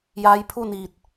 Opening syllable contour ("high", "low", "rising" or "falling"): rising